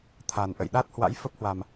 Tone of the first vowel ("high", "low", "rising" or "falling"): low